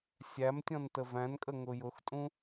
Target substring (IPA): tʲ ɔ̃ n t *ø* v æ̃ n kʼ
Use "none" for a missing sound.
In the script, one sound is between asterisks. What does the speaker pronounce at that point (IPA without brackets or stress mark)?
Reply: ə